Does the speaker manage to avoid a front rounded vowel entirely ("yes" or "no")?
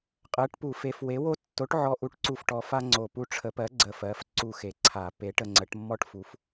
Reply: yes